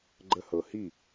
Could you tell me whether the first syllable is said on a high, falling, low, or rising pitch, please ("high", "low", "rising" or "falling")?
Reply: high